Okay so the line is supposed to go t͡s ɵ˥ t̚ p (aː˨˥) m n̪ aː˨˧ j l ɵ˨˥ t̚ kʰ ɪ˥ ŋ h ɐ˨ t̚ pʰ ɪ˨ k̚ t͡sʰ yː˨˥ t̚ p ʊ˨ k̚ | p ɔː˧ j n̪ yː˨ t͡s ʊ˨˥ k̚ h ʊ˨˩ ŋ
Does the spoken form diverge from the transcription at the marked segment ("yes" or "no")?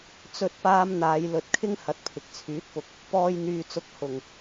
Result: yes